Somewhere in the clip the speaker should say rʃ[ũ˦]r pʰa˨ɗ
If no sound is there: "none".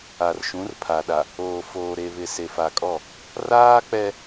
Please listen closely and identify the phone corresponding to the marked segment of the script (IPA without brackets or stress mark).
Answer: ũ˨˦